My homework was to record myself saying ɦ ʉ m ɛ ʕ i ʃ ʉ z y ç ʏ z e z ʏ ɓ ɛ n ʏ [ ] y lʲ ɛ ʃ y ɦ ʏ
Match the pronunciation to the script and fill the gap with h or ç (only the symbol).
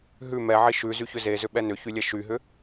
ç